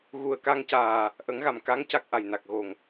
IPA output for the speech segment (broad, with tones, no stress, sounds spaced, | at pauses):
ɣ u˨˩ ə̯ k a˧ ŋ c aː˨˩ | ʔ ə˨˩˦ ŋ ɣ a˨˩ m k a˧˥ ŋ c a˦˥ k̚ ʔ a˨˩ j n a˨˩ k̚ ɣ o˨˩ ŋ